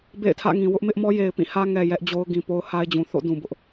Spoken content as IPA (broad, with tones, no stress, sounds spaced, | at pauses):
b ḛ˦˨ ɪ̯ tʰ ä̰˦˨ ŋ ĩ˨ w ʊ˦ ʔ m ɪ˦ ʔ m ɔ˦ j e˨ ɪ̯ p ĩ˦˨ h ä˦ ŋ ɛ˨ j ɛ˦ ʔ d͡ʑ o˦ ʊ̯ ɡ ĩ˨ p o˦ ʊ̯ h a˦ ɪ̯ d͡ʑ ũ˨ θ o̰˦˨ d ũ˨ b ʊ˦ ʔ